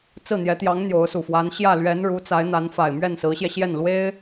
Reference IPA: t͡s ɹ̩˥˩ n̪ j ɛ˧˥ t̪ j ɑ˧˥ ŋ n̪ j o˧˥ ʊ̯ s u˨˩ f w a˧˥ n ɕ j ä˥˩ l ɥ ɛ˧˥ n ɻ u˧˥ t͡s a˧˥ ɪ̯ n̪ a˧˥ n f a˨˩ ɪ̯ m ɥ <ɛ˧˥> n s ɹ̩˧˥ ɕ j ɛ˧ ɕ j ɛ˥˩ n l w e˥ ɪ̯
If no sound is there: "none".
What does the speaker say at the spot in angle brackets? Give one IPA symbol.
ɛ˥˩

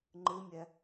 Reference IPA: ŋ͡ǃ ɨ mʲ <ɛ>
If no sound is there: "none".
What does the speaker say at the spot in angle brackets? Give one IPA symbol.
ɛ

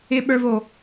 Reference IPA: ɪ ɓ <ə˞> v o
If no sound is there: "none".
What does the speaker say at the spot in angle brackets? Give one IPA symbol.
ə˞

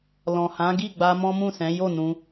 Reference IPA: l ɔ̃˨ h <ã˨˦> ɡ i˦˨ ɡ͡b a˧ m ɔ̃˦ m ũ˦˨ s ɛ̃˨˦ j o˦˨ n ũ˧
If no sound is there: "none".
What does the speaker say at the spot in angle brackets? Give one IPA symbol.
ã˨˦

